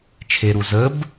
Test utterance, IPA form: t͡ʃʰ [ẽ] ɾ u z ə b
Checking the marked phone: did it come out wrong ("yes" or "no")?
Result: yes